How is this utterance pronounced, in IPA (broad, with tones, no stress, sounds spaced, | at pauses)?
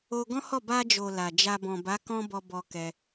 o˧ ɡ ɔ̃˦ h ɔ˦˨ b a˧ d͡ʒ o˨ l a˨ d͡ʒ a˧ b ɔ̃˨ b a˨˦ k ɔ̃˦ b ɔ˧ b ɔ˧ k ɛ˧